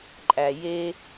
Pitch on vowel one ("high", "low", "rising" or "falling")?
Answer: low